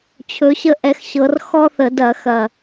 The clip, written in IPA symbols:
t͡ɕʰ ɵ˨˦ ɕ ə˦ ʔ ɛ˨˦ x ɕ ɤ˨˦ r x ɔ˦ θ ə˧˩˧ d ɐ˧˩˧ x ɐ˨˩

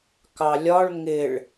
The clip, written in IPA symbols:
k ɑ lʲ ɒ ɭ ŋ ɪ ɭ

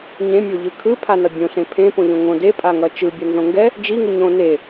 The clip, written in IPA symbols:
ɲ ẽ mʲ o ʎ ɯ kʰ ɯ pʰ a n ʌ bʲ õ ɬ ẽ pʰ ẽ p õ ʎ õ ŋ õ d e pʼ a ŋ ʌ t͡ʃ ɯ bʲ ʌ n z õ ŋ ɡ ɛ | d͡ʒ i ŋ ɯ ɲ õ n e

